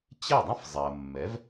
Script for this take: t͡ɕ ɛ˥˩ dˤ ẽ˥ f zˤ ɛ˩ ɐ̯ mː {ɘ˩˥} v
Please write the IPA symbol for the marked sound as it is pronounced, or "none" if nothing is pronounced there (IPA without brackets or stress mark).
ɛ˩˥